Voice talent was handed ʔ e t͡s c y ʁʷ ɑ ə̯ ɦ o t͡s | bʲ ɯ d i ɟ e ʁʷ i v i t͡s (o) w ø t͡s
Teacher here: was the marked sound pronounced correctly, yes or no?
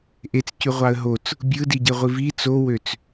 yes